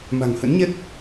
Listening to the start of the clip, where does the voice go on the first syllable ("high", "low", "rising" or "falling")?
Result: low